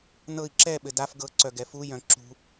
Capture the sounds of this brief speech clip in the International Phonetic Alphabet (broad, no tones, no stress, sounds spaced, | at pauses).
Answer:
n ɤ i̯ ǁ ɛ ɓ ɘ d a f ɡ ɤ ǀ œ ɡ ɛ f u j œ̃ ǁ ṳ